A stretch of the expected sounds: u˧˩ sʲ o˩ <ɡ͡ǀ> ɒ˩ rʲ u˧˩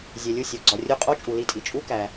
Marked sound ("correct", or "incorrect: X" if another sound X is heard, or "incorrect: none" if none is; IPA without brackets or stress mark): correct